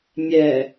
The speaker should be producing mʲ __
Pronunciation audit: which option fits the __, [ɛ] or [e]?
ɛ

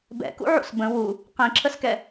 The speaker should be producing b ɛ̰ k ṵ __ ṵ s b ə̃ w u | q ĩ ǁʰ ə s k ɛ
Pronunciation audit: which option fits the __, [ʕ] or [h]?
ʕ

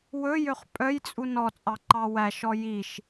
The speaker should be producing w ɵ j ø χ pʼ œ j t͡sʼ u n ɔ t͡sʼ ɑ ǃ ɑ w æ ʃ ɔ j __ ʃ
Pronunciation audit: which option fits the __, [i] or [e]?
i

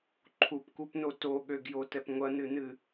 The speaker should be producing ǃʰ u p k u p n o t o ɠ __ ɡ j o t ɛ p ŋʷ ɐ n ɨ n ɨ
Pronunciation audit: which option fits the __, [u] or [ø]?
ø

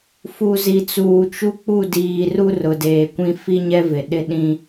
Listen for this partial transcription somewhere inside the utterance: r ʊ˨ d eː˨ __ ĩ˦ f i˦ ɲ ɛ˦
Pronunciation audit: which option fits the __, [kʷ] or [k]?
kʷ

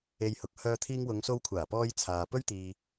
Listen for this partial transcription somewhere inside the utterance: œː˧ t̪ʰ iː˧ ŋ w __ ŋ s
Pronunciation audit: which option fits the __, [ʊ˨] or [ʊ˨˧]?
ʊ˨˧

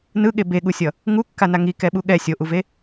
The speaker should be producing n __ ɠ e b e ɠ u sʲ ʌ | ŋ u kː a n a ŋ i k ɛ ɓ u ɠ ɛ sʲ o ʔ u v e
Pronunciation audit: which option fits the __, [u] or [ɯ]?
ɯ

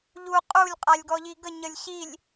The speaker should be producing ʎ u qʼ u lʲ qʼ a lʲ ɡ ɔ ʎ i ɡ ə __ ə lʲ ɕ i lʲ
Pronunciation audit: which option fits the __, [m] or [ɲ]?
ɲ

